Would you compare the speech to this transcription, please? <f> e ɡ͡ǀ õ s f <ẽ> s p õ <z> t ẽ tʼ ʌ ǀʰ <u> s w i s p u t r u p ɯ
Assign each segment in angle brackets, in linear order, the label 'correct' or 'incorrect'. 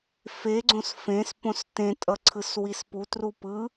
correct, correct, incorrect: s, incorrect: ɯ

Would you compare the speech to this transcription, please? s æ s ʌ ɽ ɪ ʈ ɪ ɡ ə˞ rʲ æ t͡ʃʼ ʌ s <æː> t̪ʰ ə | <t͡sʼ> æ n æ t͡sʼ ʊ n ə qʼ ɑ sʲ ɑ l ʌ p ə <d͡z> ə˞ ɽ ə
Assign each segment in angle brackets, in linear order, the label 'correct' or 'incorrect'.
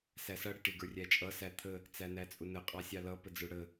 incorrect: æ, incorrect: t͡s, correct

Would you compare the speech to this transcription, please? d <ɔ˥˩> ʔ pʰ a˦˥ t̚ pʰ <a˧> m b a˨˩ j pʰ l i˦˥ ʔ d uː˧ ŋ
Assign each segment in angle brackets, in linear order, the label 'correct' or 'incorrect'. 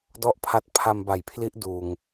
correct, correct

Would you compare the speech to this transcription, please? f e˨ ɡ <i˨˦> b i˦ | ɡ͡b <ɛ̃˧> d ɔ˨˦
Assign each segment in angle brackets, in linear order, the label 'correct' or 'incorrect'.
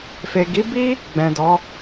correct, incorrect: ɛ̃˨

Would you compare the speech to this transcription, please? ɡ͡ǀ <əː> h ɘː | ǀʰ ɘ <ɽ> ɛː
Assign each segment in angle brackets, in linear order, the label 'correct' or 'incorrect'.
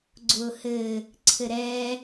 incorrect: ʊː, incorrect: ɾ

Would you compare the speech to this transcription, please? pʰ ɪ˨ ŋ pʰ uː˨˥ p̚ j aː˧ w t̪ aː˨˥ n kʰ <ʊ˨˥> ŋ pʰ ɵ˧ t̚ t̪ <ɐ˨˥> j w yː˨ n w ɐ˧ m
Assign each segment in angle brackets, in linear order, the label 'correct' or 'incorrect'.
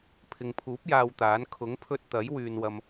correct, correct

